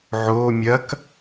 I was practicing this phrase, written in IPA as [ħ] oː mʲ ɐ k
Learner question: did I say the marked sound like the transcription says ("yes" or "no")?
no